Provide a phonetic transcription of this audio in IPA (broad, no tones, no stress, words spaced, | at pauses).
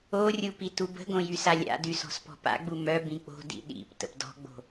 orʲu pitubə̤ɡõ jysalʲa̰dy sɔ̤spɔ̤pa̰ɡ͡bu mœbĩ k͡po̤dḭ ɗḭp tə̰pdɔ̤ɡ͡bo̤